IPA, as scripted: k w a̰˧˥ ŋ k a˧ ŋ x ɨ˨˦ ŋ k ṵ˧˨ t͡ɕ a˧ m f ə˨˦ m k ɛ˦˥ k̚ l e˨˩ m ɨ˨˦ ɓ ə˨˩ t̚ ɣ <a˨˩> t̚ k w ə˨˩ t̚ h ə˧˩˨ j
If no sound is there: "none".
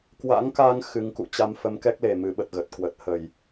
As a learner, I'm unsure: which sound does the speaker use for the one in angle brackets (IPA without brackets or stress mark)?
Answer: ə˨˩